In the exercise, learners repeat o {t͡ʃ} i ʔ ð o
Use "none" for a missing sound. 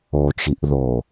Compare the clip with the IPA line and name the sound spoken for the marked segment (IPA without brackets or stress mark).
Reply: t͡ʃ